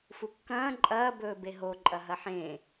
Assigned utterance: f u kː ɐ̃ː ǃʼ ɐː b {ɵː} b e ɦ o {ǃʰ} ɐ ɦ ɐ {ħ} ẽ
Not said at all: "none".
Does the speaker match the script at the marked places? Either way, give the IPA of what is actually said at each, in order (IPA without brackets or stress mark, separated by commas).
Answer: ɵː, ǃʼ, ħ